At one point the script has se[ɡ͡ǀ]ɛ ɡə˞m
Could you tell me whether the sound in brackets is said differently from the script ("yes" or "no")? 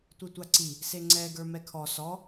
yes